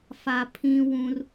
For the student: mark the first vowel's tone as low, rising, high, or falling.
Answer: low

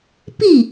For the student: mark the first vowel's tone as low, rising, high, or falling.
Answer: falling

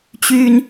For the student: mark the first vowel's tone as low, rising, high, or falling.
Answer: high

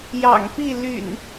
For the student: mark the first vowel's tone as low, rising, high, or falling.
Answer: low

